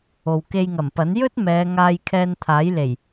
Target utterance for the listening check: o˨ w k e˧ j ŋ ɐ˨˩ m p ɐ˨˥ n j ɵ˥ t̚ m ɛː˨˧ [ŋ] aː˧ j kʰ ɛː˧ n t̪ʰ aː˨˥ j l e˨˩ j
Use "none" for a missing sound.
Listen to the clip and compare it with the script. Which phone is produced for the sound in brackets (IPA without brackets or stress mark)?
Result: ŋ